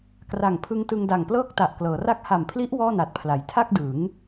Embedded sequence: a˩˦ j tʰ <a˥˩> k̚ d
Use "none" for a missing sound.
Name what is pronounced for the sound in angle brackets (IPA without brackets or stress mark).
a˥˩